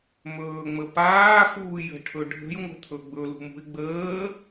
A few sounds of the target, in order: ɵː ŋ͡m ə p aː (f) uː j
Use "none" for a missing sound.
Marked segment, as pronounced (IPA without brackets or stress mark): f